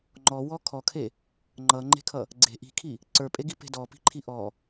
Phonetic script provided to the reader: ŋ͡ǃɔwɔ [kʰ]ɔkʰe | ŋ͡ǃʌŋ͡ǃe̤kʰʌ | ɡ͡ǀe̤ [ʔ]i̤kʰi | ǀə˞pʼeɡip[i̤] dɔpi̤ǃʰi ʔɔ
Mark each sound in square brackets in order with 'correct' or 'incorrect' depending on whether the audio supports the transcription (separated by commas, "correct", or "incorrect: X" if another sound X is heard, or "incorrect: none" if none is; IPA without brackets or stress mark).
correct, correct, incorrect: e̤